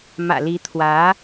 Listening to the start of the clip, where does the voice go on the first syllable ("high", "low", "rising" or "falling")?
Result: low